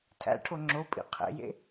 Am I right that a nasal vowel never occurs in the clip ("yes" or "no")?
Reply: yes